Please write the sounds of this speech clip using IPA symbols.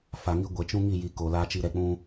f a˨ ŋ i˦ ɡʷ ɛ˨ t͡ʃ ũ˦ ŋ i˦˨ j i˨ k o˨ l aː˦ t͡ʃ i˦ ɾ ɛ˨ k͡p ũ˦

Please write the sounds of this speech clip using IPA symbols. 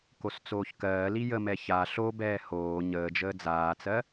k o s t͡s oː ç k ɜː l i j ə m ɛ ç a ɬ o b ɛː h oː ɲ əː d͡ʒ əː d͡z aː t͡s ɜ

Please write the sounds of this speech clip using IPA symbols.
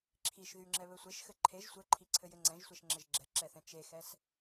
ǁʰ i ʃ ð y ŋ͡ǁ ɛ β ɘ sʷ e ʃ x ɘ ǃʰ e ʒ sʷ ɘ ǃʰ i ǀʰ ɘ j ɘ ŋ͡ǀ ɛ̃ ʒ sʷ ɛ ʃ ŋ͡ǁ ɘ ʒ ɡ͡ǁ ɛ ǁ ɛ θ ɛ̃ t͡ʃ e x ɛ s

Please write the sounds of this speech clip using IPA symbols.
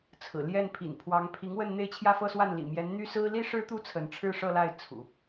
t͡sʰ ɹ̩˨˩ l j ɛ˥˩ n pʰ ḭ˨˩ n pʰ w ɑ˧˥ ŋ pʰ i˧˥ ŋ w ə˥˧ n n̪ e˥˧ ɪ̯ t͡ɕʰ j ä˥˧ f ɤ˥˧ s w a˥˩ n l ḭ˨˩ m j ɛ˧˥ n n̪ y˥ s ɹ̩˥ l i˥ ʂ ɻ̩˥ t̪ u˥ t͡sʰ ə˧˥ n ʈ͡ʂʰ ɻ̩˥˧ ʂ ɤ˥˧ l a˥˩ ɪ̯ t͡sʰ ṵ˨˩˦

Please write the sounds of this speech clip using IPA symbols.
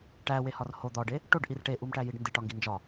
ʈ æ w e h ɒ r h o d̪ ɒ ɖ e | ʈ o ɖ ʔ i r ʈ e ʔ u m ʈ æ j i ɖ n d i ʈ ɒ ŋ ɡ i n d͡ʒ ɒ

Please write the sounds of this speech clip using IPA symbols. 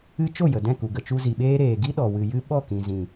ɨ˦ t͡ʃ o˦˨ j ə˨ d ɛ̃˦˨ k u˨ ɡ ə˨ t͡ʃ u˧ z i˨ ɓ eː˦ ɾ eː˨ ɡ i˦ ɗ ɔ˨ w ɨ˨ j ɨ˦ ɓ ɔ˦˨ k ĩ˨ z ĩ˨

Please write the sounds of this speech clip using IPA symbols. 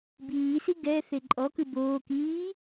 b iː s i ɡ ɛ θ e ǃʼ ɔ k ɯ b oː k iː

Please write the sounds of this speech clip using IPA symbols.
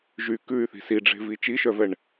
ʒ y k ʉ y̯ θ i̤ s i ɖ͡ʐ e̤ v i t͡ʃ i ʃ œ v ɛ ɳ

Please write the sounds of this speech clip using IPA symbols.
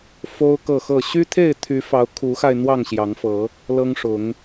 f o˦ ʊ̯ k ɤ˥˨ x ɤ˥˨ ɕ y˦ t̪ʰ e˥˨ ɪ̯ t̪ʰ y˨˦ f ɑ˨˦ ʊ̯ kʰ u˨˦ x a˧ ɪ̯ n̪ w ɑ˥˨ ŋ ɕ j ɑ˨˦ ŋ f ɤ˨˦ | l ɤ˦ ŋ ʂ ʊ˨˦ ŋ

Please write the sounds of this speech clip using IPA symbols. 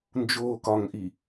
n d͡ʒ oː k ɒ ŋ ʔ i

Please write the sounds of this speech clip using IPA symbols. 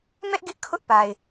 m ɛ˦ ʔ ɡ ɪ˦ ʔ kʰ ʊ˦ ʔ p a˨ ɪ̯

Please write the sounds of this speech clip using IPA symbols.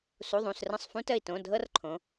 s u˩˧˩ ðˤ ũ˩˧˩ s r ə̃˧˩ sˤ f ũ˦ t ə˧˩ i̯ t õ˩˧˩ dʱ ɤ˦ r ǃʰ õ˩˧

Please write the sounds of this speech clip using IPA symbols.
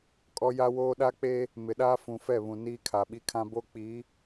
kʼ ɔ˦ j a˦ w oː˦ ɗ a˦ k͡p eː˦ | m ɪ˨ ɗ aː˦ f ũ˨ f ɛ˦˨ β ũ˨ n iː˦ kʰ a˨ ɓ i˦ kʰ ã˦ b o˦ k͡p iː˨˦

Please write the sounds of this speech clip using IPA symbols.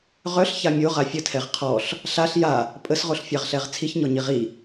ʁ œ ɬ ç a mʲ o ʁ a fʲ ə tʰ ɛ ʁ qʰ ɔ ɬ | ɬ a ɬ j a | pʼ ə s ʁ o ɬ fʲ a ʁ ɬ ɛ ʁ t͡sʰ i ç ɲ ɔ ɲ i ʁ i

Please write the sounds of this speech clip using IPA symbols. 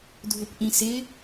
dʱ ʊ p ʔ ĩ s ɪ

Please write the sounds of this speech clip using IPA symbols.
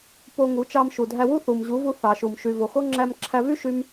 p o˧ ŋ u˨˦ t͡ʃ ɑ˧ m ʃ u˨ dʱ æ˧ w u˦ θ u˨ m ʑ u˨˦ v u˧ θ ɑ˨ ʃ u˨ m ʃ y˨ v o˨ x o˦ ŋ͡ǁ æ˧ m ǁʰ æ˧ v y˦ ʃ y˦ m

